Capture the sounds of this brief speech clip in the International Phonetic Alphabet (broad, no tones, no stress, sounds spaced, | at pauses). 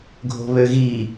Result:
ɡʱ o̤ β ø ɣ i